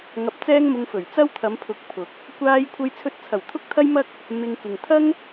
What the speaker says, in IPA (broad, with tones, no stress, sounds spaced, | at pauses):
ŋ ɐ˧ p̚ t͡s ɛː˥ ŋ m ʊ˧ ŋ f ɵ˨˩ ɥ t͡s ɐ˥ w t̪ʰ ɐ˨˧ m pʰ ʊ˨˥ k̚ pʰ ʊ˨ k̚ | kʷ aː˥ j kʷʰ ɐ˧ j t͡sʰ ɵ˧ t̚ t͡sʰ ɐ˨˩ w t̪ʰ ʊ˥ k̚ t̪ʰ ɐ˥ j m ɐ˥ k̚ | m ɪ˧ ŋ k ɪ˨ ŋ t̪ʰ ɐ˥ ŋ